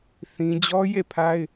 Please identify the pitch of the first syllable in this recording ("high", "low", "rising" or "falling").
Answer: high